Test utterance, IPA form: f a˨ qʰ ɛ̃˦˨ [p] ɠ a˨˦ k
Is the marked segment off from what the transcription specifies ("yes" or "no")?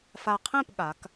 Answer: no